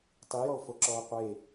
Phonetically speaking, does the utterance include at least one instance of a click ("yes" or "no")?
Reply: yes